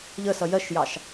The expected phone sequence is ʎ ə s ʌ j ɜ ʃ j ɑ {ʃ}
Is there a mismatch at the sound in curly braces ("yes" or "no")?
no